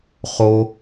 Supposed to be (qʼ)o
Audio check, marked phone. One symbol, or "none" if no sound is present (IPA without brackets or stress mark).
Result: χ